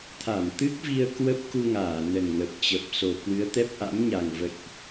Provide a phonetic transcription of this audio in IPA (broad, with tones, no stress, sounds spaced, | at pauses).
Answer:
t̪ʰ a˧˩ m t̪ ɨ˦˥ k̚ v i˧ ə̯ k w ə˦˥ p̚ k u˧ ŋ aː˧˩ n ə˨˩ n ŋ ə˨˩ p̚ t͡ɕ ə˨˩ p̚ s o˨˩ k w ɨ˨˦ ə̯ t̪ ɛ˦˥ p̚ ʔ a̰˧˥ m ɲ a˨˩ ŋ v ə̰˧˨ j ʔ